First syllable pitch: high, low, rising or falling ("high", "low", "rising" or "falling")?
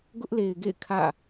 high